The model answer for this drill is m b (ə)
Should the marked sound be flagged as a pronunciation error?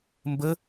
no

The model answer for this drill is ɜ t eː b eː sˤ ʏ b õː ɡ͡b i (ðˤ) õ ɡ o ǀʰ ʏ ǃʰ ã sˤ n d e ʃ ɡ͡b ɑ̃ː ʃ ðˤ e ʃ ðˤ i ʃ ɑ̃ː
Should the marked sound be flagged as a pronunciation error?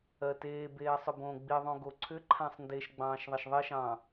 no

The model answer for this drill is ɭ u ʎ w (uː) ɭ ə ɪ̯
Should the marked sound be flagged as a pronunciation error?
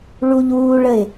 no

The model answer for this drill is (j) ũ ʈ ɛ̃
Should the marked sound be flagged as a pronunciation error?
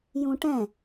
no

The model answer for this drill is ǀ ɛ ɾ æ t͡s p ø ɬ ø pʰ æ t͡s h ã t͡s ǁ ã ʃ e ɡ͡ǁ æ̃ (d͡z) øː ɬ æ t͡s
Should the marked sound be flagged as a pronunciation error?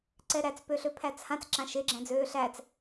no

